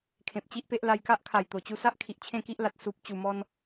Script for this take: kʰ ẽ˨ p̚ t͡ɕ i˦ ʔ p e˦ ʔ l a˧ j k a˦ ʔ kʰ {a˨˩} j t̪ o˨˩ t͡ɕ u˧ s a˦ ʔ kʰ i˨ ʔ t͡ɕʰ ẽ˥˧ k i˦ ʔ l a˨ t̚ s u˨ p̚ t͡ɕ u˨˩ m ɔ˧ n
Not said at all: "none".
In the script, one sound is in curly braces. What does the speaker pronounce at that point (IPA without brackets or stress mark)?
a˨˩